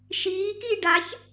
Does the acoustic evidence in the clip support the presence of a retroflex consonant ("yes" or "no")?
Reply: yes